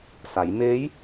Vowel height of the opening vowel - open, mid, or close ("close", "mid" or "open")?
open